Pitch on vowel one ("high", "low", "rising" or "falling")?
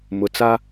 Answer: low